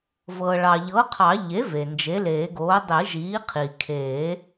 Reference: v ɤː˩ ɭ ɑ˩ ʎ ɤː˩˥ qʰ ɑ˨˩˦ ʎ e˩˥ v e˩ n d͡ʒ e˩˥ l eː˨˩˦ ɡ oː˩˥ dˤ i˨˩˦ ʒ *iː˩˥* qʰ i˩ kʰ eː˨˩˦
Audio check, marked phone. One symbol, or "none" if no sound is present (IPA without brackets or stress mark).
iː˩˥